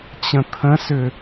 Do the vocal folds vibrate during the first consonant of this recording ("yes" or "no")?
no